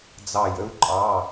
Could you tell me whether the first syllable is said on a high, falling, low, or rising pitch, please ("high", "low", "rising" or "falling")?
falling